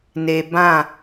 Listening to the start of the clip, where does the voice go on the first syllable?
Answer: low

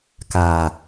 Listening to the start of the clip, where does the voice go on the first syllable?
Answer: low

